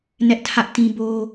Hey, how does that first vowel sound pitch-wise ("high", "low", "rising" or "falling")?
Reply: high